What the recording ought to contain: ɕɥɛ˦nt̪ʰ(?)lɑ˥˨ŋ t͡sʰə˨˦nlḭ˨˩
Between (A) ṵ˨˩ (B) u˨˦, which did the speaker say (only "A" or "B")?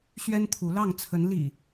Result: B